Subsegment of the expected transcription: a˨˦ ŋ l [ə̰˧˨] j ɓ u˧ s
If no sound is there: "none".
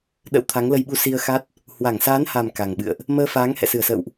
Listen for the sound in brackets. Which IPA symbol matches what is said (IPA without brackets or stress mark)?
ə˧